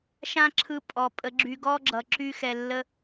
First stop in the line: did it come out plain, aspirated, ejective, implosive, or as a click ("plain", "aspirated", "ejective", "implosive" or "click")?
click